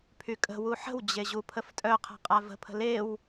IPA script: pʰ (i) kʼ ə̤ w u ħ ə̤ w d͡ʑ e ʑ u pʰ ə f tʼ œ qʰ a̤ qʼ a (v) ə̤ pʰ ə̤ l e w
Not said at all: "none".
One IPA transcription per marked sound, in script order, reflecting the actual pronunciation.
y, v

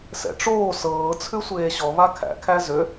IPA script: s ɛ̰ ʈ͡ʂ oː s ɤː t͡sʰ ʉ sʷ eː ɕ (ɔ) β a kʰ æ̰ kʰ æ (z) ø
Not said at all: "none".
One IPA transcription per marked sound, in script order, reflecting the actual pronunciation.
ɔ, z

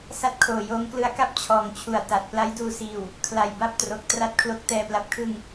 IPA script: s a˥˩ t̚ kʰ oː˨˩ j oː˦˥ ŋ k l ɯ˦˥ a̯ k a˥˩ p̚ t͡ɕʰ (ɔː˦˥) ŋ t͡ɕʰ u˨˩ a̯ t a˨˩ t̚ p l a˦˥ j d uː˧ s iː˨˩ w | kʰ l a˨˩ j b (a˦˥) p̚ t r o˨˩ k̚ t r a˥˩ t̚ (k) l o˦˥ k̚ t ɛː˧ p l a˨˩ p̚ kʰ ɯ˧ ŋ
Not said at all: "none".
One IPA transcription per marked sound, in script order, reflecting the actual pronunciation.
ɔː˨˩, a˥˩, kʰ

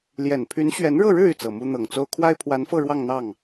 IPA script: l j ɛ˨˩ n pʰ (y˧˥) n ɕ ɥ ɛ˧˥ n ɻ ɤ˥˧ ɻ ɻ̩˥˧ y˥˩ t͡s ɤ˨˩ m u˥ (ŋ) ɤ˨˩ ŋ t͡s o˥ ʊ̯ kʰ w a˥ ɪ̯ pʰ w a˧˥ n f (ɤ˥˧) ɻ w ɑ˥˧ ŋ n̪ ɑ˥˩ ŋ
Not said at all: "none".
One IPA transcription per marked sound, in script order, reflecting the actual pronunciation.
y˧˥, n̪, ɤ˥˧

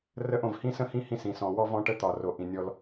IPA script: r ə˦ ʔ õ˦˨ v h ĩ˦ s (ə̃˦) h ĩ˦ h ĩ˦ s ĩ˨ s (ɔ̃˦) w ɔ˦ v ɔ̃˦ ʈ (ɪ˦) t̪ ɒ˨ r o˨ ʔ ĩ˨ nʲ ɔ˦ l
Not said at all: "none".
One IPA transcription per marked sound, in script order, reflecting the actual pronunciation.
ə̃˦, ɔ̃˨, ə˦

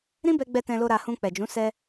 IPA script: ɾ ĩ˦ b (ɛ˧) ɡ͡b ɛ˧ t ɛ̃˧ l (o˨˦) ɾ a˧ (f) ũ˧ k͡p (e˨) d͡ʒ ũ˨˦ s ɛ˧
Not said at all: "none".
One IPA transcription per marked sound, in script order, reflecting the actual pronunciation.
ɛ˧, o˧, h, ɛ˨

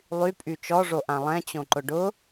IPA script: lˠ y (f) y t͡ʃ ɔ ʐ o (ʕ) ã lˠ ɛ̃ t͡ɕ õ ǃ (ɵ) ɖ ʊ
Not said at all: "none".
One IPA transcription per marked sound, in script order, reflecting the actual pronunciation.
pʼ, ʔ, ʊ

